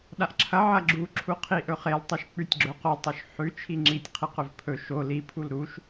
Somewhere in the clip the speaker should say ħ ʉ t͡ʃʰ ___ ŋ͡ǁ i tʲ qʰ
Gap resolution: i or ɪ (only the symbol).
i